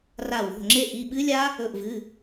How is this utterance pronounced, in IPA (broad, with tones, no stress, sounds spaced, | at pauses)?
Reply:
r a˧˩ w o̤˩˧˩ ŋ͡ǁ e˦˥ ʔ i˩˧˩ ɓ ɨ˦˥ lʲ a˦˥ | ɵ˧˩ ʔ v ɨ˩˧˩